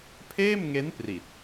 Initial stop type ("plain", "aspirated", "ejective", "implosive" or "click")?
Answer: aspirated